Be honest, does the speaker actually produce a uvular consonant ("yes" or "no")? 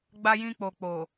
no